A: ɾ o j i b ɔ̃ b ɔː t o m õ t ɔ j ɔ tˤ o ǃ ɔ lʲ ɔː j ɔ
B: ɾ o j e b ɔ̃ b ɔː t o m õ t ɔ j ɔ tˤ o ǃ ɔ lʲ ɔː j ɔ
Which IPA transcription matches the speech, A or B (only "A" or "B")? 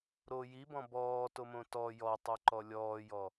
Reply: A